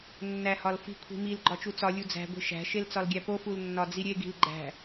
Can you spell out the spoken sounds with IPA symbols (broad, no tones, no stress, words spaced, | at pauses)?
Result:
nːæhɒlfi̤ kʷʰi̤mil ɡ͡ǃɒt͡ʃut͡sɒ lʲud͡zæ̤ ɡʷi̤ʃæ̤ ʃelt͡sɒlɡʲæpo fulnːɒd͡ziɾʲe ɡi̤lɡ͡ǃæ̤